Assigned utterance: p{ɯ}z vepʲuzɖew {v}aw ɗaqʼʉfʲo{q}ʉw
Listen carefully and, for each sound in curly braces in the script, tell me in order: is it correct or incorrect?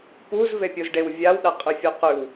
incorrect, incorrect, correct

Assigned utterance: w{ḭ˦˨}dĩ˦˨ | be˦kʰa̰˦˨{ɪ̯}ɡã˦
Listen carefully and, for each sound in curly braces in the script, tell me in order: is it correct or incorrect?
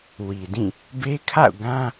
incorrect, incorrect

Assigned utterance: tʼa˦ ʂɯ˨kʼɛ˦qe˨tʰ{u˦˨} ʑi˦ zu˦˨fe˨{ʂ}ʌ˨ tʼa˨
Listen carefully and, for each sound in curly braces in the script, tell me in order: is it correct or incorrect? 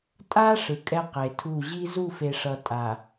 correct, correct

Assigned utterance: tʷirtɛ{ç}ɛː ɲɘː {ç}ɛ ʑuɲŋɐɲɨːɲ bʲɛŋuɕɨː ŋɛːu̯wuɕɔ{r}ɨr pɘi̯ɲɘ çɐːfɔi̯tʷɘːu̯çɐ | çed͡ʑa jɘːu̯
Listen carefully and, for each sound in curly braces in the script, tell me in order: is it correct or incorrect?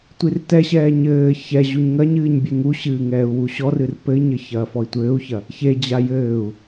incorrect, correct, correct

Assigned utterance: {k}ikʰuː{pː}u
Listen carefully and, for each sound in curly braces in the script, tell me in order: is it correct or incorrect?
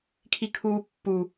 incorrect, correct

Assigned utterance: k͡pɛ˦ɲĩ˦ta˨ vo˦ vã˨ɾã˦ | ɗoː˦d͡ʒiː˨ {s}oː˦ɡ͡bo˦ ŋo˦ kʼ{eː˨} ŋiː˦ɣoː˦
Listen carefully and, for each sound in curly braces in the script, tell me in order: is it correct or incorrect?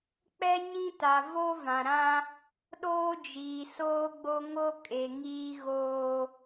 correct, incorrect

